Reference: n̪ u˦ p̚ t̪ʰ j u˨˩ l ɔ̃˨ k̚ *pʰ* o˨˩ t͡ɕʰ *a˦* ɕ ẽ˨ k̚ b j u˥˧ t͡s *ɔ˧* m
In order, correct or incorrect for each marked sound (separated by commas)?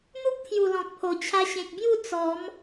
correct, incorrect, incorrect